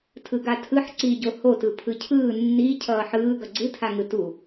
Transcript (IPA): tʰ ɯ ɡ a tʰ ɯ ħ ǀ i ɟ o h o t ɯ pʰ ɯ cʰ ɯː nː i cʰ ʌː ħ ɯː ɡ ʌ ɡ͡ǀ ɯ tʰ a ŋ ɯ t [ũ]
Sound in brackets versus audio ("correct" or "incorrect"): incorrect